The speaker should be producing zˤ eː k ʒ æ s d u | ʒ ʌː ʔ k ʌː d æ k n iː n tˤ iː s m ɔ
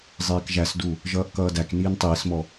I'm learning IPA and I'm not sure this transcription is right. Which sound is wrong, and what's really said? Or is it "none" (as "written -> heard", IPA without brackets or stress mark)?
none